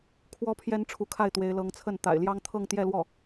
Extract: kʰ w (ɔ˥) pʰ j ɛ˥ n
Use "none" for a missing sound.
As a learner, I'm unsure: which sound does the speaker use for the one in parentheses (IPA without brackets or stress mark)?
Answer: ɔ˥